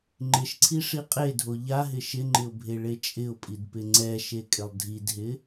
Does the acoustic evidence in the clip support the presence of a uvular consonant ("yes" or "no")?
yes